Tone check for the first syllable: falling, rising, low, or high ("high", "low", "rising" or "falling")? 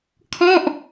falling